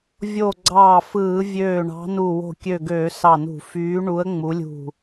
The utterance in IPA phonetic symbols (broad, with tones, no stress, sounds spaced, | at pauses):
vʲ o˧˩ ɡ͡ǀ ɑː˧˩ f ɯː˧˩˧ vʲ øː˧˩ ɳ ɑ̤˨˦ n u˧˩ w o̤˧˩ kʲ ø˧˩ ɡ øː˧˩˧ s ɑ˧˩ n ṳ˧˩˧ f yː˨˦ ɳ u˨˦ ə̯ ŋ͡m u˨˦ lʲ ṳ˧˩